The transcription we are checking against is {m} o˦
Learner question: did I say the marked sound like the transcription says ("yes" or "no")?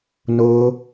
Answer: no